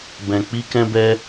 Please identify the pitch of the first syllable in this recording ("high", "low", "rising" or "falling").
low